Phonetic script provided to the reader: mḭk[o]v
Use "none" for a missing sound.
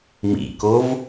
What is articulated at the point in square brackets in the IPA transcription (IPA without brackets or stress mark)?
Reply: o